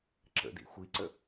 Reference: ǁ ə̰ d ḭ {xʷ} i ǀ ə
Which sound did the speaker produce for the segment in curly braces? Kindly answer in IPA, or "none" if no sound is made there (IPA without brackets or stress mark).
xʷ